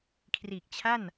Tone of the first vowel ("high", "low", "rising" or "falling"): low